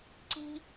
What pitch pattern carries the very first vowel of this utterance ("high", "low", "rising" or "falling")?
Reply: high